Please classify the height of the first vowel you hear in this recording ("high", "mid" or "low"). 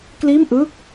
high